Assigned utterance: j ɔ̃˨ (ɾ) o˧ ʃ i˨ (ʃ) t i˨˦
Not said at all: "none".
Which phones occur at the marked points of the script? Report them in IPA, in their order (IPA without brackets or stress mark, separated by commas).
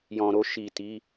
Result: ɾ, none